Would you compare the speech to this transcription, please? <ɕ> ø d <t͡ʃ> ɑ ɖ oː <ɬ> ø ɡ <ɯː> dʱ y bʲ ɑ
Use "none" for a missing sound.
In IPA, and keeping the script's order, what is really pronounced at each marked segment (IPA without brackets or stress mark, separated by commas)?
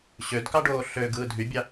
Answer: ɕ, k, ɬ, ɯː